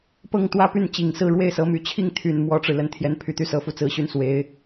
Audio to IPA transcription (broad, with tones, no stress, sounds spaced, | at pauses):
p ɤ˥˩ ŋ t̪ w ä˥ p y˥˩ n t͡ɕ i˨˩ ŋ s ɹ̩˥˧ ɻ w e˥˩ ɪ̯ s ɤ˧˥ m y˨˩ t͡ɕʰ i˥˩ ŋ t̪ʰ y˨˩ n m w ɔ˥ ʈ͡ʂ ɻ̩˨ l ə˧˥ n t̪ʰ j ɛ˧˥ n pʰ y˨˩ t̪ y˥˩ s ɤ˥ f u˥˩ t͡s ɹ̩˥ ɕ y˥˩ n s w e˧˥ ɪ̯